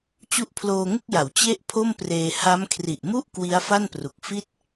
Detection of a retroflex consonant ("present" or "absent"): absent